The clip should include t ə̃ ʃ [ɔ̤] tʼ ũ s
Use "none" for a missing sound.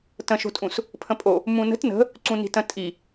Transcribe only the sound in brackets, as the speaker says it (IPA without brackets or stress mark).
o̤